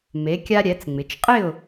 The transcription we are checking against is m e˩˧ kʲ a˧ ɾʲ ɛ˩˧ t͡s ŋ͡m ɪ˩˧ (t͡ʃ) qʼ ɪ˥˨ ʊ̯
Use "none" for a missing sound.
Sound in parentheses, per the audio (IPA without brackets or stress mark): t͡ʃ